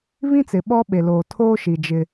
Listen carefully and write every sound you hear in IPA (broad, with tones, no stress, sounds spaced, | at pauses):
β ĩ˦ t͡s ɪ˨ ɓ ɔ˦ ɓ e˨ l oː˨ tʰ oː˦ ʃ i˨ d͡ʒ ɪ˦